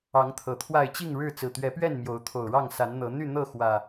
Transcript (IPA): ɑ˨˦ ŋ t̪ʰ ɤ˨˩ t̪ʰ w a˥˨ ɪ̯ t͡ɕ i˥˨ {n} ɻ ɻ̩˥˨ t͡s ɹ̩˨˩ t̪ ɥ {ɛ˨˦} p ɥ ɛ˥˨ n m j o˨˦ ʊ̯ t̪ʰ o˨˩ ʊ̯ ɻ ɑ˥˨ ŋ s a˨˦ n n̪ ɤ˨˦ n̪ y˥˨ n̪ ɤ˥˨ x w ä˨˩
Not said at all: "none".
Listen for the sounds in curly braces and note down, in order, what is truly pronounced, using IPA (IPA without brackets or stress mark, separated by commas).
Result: ŋ, ɛ˨˦